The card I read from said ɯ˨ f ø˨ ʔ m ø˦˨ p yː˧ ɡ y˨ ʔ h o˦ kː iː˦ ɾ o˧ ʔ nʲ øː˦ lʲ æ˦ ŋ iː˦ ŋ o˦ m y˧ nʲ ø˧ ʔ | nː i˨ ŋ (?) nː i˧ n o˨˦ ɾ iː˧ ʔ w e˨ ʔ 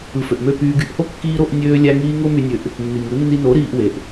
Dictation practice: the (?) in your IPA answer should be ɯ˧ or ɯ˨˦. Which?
ɯ˨˦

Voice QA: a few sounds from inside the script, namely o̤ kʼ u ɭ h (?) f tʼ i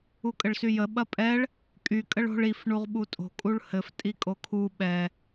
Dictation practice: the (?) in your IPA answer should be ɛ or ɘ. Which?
ɘ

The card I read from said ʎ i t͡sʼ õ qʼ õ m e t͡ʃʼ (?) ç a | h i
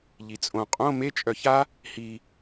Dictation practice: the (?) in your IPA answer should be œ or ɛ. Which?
œ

